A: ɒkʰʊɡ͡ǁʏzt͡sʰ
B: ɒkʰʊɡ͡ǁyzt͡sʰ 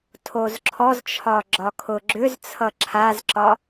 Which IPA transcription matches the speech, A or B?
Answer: A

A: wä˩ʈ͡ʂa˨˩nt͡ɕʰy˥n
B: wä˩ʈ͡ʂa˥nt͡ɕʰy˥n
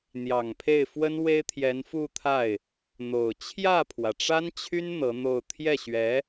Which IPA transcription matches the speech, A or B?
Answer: B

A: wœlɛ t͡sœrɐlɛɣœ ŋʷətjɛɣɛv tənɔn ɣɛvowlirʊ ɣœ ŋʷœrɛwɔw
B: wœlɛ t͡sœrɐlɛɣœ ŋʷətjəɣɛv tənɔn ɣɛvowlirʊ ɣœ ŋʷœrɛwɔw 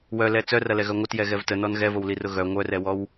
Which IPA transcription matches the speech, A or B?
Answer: A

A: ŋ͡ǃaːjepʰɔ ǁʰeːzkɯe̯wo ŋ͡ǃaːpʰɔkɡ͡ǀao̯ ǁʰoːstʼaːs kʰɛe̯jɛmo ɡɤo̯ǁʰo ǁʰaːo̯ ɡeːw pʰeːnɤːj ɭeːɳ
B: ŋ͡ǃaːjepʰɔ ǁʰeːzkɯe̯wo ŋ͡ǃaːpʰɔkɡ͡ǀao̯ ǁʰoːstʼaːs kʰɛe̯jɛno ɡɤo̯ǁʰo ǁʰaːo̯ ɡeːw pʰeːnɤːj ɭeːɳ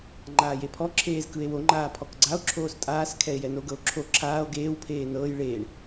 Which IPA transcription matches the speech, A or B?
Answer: B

